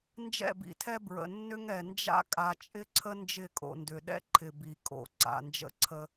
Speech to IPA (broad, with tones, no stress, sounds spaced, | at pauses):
n d͡ʒ ɛ̰˦˨ b ḭ˨ tʰ ɛ˦ b ɹ ə̰˨ nː ʏ˦ ŋ ɛ˨ n d͡ʒ a̰˦ kʼ a˨ t͡ʃʼ ɪ˦ ǀʰ ə˦ n d͡ʒ ɪ˦˨ kʼ o̰˨ n d ʏ˨ ɗ ɛ̰˦ ǃʰ ɪ˨ b i˨ kʼ o̰˨ ǀ a̰˨ n d͡ʒ ə̰˦ ǀʰ ə˦